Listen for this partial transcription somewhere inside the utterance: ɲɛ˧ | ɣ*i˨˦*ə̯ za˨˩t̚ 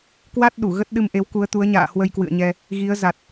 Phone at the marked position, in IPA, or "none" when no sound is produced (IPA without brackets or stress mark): i˨˦